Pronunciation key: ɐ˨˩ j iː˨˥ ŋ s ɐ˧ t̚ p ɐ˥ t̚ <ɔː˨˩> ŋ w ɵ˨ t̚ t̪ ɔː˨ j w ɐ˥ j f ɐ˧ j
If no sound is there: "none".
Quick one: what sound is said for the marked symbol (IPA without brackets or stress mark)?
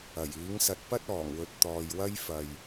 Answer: ɔː˨˩